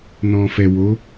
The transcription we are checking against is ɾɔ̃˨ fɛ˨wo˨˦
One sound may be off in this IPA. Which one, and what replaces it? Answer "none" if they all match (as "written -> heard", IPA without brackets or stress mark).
ɾ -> n